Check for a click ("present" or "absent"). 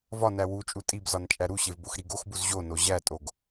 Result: absent